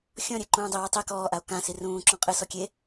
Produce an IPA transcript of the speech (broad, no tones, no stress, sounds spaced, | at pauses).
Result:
xʲ ɔ̃ ɾʲ ɛ ǃ ũː dˤ i w ɛ tˤ e k ɔː ʔ a o̯ k ã s i r ũː ǁ ɔ̃ qʼ ɨ s ɔ kʲ e